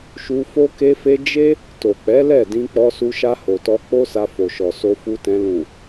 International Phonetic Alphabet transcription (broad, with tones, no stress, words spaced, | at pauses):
ʃu˧ fo˦ ke˧fe˧ d͡ʒe˦ | to˨k͡pɛ˨˦ lɛ˦˨dĩ˧ k͡pɔ˧su˧ʃa˧ ho˨tɔ˧ k͡po˦sa˧ fo˨ʃɔ˨ so˧fu˧tɛ̃˧ lũ˨